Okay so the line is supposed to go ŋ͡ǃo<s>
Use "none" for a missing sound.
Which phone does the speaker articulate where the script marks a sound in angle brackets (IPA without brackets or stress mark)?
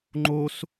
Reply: s